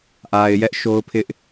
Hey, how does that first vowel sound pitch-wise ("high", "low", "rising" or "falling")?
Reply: low